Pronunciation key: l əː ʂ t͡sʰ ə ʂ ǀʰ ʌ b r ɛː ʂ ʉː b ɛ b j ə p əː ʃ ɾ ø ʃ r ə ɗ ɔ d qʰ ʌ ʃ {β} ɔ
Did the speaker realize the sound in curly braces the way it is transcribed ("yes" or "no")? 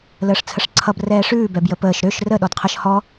no